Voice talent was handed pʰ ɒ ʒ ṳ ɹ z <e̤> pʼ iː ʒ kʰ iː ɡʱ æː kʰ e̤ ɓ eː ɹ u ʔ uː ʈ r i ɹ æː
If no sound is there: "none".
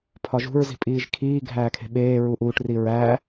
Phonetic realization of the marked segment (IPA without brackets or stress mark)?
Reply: i̤